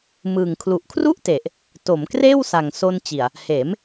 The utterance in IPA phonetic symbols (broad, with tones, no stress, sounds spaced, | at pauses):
m ɯː˨˩ ŋ kʰ l u˨˩ ʔ kʰ r u˥˩ ʔ t e˨˩ ʔ | t o˩˦ m k r eː˥˩ w s a˨˩ ŋ s o˧ n t͡ɕ i˨˩ a̯ | h eː˩˦ m